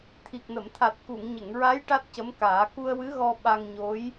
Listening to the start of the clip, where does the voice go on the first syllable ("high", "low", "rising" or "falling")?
low